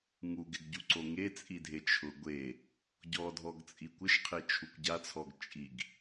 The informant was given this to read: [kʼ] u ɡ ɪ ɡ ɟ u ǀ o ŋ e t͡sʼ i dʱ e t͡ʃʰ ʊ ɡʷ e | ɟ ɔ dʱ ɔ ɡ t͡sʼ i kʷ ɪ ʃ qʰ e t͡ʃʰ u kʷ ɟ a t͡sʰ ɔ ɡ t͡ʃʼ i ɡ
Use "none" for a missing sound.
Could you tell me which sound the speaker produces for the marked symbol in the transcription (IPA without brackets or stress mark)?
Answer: ŋ